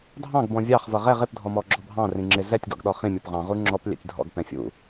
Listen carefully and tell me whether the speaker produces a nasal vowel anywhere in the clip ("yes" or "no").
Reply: yes